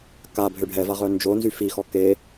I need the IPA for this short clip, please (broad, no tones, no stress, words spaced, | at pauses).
ka bʱøɖʱɛva ʁœnd͡ʒonzy fixɔ ke